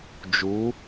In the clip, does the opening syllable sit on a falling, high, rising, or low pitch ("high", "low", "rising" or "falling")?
rising